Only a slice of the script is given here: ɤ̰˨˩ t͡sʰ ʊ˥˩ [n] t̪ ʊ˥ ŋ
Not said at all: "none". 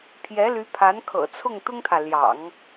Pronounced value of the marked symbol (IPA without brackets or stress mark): ŋ